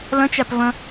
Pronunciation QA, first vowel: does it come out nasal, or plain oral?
nasal